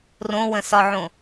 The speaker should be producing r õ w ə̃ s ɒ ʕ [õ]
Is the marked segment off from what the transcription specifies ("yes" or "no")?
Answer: no